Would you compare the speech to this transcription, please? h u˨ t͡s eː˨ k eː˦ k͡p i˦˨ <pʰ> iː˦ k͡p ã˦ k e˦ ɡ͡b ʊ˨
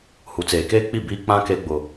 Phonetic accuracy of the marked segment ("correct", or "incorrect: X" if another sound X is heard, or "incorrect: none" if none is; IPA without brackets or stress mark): incorrect: b